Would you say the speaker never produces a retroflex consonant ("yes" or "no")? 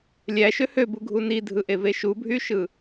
yes